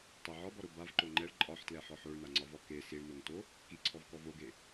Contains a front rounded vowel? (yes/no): no